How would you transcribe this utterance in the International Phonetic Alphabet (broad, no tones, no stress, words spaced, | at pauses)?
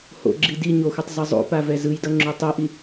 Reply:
ho̰ɡ͡ǁi di ɲoxutˤ zʌzˤo̰pa vɛzɯjdʌ ŋ͡ǁutˤoʔi